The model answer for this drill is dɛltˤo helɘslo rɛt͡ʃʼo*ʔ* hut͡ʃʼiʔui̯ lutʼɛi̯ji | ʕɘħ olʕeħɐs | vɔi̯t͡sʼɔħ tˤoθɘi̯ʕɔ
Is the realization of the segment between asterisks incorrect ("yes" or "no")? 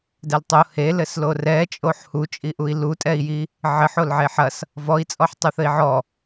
yes